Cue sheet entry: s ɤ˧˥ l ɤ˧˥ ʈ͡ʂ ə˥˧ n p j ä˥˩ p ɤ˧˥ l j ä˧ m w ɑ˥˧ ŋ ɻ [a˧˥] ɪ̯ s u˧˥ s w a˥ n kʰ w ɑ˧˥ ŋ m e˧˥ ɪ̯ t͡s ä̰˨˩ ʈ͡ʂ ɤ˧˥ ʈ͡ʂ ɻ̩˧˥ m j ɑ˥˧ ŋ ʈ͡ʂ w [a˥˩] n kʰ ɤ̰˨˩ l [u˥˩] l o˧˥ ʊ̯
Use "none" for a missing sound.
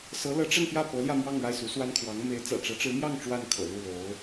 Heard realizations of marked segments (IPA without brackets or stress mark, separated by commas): a˥˩, a˥˩, u˥˩